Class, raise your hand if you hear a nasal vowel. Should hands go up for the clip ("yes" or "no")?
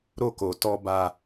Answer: no